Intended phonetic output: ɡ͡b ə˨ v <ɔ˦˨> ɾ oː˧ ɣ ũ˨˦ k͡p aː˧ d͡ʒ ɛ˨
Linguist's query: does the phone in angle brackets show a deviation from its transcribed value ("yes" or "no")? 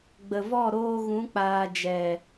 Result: no